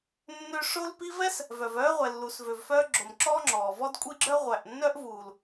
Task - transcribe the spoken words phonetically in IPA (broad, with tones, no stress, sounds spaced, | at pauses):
nː ø˧ ʂ o˧ l p i˧ v ɛ˦ s | v œ˨ v œː˦ ʁʷ ɛ˨ lː uː˨ s v ø˨ v f œː˧ ɡ͡ǁ o˨ m ǁ ɔː˦ ŋ͡ǁ ɔː˨ v ɔ˦ d kʷʼ i˦ ɡ͡ǁ œ˦ ʁʷ æ˨ ʔ nː œ˦ ʔ v uː˨ l